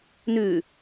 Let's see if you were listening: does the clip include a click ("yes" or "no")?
no